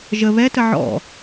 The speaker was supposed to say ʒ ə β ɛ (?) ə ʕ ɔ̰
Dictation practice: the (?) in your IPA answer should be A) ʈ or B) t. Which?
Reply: B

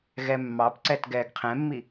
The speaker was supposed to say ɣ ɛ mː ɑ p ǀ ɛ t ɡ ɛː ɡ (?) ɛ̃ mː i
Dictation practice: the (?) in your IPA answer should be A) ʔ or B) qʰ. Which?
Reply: B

